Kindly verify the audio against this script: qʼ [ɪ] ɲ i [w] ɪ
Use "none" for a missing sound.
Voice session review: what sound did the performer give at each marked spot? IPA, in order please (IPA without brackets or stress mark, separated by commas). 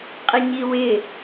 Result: ɪ, w